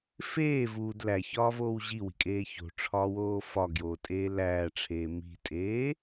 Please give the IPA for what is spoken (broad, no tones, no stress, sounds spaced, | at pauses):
f eː v uː d l æ ç ɒː v oː w ʑ i w i̤ kʼ eː ç o̤ ʈ͡ʂʰ ɒː w oː f ɒ ɡ j oː tʼ eː l æː ʈ͡ʂʰ eː m i̤ tʼ eː